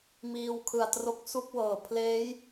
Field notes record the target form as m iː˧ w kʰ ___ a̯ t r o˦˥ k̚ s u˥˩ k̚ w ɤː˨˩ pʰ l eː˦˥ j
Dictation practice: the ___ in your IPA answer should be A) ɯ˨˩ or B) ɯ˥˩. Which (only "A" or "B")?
A